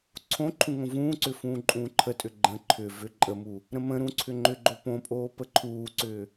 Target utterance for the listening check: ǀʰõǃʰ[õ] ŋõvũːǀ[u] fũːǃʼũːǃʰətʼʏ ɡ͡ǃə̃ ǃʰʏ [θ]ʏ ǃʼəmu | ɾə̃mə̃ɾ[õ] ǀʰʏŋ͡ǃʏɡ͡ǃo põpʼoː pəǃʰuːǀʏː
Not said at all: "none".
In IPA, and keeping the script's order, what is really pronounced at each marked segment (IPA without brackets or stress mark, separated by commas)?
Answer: ũ, ʏ, v, ũ